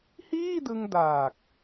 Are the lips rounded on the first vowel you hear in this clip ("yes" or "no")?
no